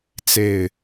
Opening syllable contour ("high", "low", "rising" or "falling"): falling